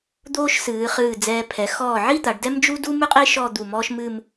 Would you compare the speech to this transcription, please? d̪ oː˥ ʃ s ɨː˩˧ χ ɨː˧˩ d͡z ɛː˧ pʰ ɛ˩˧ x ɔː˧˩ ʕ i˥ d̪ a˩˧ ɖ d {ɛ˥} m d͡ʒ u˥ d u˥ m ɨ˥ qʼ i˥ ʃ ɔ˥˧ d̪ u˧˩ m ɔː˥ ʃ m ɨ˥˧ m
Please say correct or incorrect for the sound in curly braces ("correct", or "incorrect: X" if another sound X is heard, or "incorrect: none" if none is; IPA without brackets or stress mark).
correct